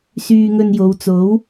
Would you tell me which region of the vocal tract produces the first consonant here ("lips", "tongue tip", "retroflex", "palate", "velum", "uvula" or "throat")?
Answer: tongue tip